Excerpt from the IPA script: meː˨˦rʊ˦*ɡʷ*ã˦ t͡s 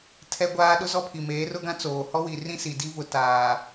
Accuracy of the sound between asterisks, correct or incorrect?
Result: incorrect